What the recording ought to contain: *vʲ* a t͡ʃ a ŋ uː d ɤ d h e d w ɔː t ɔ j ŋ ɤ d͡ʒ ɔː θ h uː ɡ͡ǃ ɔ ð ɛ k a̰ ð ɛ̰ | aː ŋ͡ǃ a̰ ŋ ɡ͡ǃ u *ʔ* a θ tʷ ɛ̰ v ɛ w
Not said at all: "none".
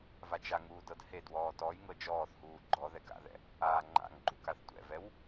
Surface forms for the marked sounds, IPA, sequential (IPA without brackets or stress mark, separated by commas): v, k